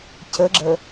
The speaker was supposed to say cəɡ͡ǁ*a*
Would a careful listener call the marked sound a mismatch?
yes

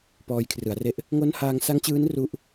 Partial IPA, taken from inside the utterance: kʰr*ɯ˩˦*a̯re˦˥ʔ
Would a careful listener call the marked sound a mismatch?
no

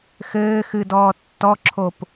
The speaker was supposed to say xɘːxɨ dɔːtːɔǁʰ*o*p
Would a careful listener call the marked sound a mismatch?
no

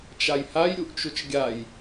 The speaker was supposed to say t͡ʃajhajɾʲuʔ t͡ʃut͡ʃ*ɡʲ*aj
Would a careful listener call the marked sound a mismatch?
no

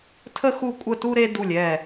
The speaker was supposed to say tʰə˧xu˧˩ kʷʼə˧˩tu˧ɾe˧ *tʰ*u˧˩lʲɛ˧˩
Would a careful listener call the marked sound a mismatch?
yes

